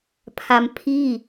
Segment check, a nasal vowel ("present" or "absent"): absent